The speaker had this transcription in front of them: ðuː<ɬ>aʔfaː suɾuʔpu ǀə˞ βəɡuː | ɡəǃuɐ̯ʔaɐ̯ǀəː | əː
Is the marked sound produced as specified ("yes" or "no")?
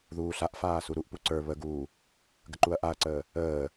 yes